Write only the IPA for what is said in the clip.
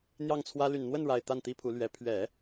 n̪ j ɑ˥˩ ŋ t͡sʰ w ä˥ l y˨˩ n n̪ w ə˥˩ n ɻ a˨˩ ɪ̯ t̪ a˥˩ n t̪ i˥ pʰ u˧˥ l ɥ ɛ˧˥ pʰ ɥ ɛ˨˩˦

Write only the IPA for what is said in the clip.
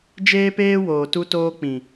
d͡ʒ eː˦ p eː˦ w oː˨ t u˦ t oː˦ k͡p ĩ˨

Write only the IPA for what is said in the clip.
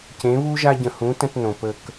c ẽ˨˦ β u˦ ʒ a˧ ɟ ə̃˨ h ũ˨˦ t ə̃˧ t n õ˨ p ə˧ k

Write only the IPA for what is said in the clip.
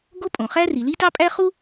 ɡ o˥ pʼ õ˩ χ æ˥ r i˩ l i˥ t ɑ˥ pʼ æ˥ χ u˥

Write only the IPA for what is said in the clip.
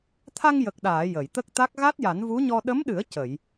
t̪ʰ a˧ ŋ j ə˨˩ k̚ ɗ aː˨˩˨ j ə˨˩˨ j t̪ ə˦˥ k̚ t̪ a˦˥ k̚ ɣ a˦˥ t̚ j a˨˩˦ n v u˧˥ ɲ ɔ˧ ɗ ə˧˥ m ɗ ɨ˨˩˦ ə̯ c ə˨˩˨ j

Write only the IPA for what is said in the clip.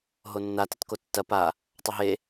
ɦ o nː a t ə t k o tː ɐ p a | tˤ ɐ ɦ e

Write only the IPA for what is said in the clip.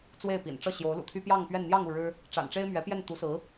t͡s w e˥˩ ɪ̯ p ḭ˨˩ n ʈ͡ʂ ɤ˥˩ ɕ j o˧˥ ʊ̯ l ṵ˨˩ t̪ʰ y˥ p j ɑ˥˧ ŋ p ɥ ɛ˥˧ n n̪ j ɑ˥˧ ŋ u˥˩ ɻ ɻ̩˥ | ʈ͡ʂ a̰˨˩ n ʈ͡ʂ e˥ ɪ̯ m ɥ ɛ˧˥ p j ɛ˥˩ n t̪ u˧˥ s ɹ̩˧˥

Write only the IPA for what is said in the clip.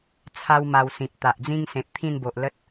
t͡sʰ a˦ w m a˧ w s ĩ˨ p̚ t̪ a˨ ʔ d͡z ĩ˦ ŋ s ẽ˨ p̚ t̪ʰ ĩ˥˧ n b o˨ ʔ l ə˦ t̚

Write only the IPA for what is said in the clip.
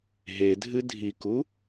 ɦ e dʱ ɨ dʱ i k u

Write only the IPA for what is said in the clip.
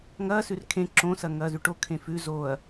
ŋ ɐː s ʉ r kʰ ẽ ǁ õ s ɐ ŋ ɐː z ʉ ʈ o kʰ ẽ f ʉ z oː ɐ̯

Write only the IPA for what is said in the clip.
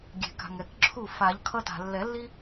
ɡʲ e̤˨˩˦ k a̤˨ ŋ ɛ˨˩˦ k ǁʰ u˥˩ f a˨˩˦ ʎ kʰ ʌ˦ t a̤˨ lː ɛ˨˩˦ lː i˦

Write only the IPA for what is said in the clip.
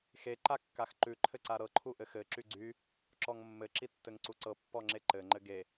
x e ǃ a kː a x ǃ ʉ ǃʰ ɘ ǀ a ɾ ɤ ǃʰ u ʔ ɘ x ɘ ǁ y ɡ͡ǀ y | ǁ ɔ ŋ mː ɘ ǁ i tː ɘ ŋ ǀ u ǀ ɤ pː ɔ ŋ͡ǁ e ǃ ɘ ŋ͡ǃ ɘ ɡ e

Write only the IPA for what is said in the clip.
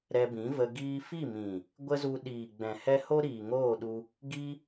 ɾ ɛ˧ b ĩ˨˦ v ə˧ ɡ iː˧ f i˦˨ m ĩ˨ | ɡʷ ə˦ z u˧ ɗ iː˨ ɡ͡b ɛ̃˨ h ɛ˦ h o˦ ɾ iː˨ ŋ oː˦˨ ɗ u˧ | ɡ i˦

